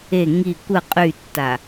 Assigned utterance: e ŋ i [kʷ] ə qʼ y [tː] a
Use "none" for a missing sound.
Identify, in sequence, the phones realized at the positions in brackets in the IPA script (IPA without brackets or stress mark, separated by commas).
kʷ, tː